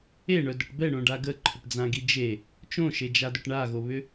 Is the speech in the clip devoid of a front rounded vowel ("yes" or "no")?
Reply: no